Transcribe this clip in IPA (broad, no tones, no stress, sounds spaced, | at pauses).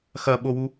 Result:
x ɐ ɓ o w u